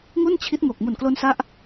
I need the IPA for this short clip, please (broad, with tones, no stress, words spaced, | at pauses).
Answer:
ŋu˥˩nt͡ɕʰi˦˥t̚ ŋo˨˩k̚ mu˨˩nklo˧nsa˦˥ʔ